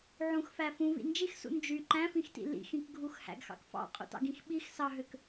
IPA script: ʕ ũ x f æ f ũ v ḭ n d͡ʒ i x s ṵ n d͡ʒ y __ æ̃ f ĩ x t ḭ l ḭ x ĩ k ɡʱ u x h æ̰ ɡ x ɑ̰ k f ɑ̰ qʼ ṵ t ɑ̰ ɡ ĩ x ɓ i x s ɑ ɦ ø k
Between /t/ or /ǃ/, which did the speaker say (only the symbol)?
ǃ